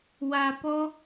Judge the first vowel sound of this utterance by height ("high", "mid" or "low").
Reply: low